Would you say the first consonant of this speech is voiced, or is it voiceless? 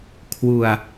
voiceless